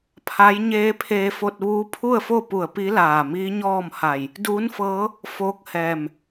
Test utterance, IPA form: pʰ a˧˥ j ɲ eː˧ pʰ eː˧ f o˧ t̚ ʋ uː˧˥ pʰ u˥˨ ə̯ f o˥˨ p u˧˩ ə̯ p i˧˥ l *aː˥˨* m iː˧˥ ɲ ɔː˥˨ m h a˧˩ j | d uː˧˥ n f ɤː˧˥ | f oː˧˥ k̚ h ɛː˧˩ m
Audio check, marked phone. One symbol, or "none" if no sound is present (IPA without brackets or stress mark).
aː˧˩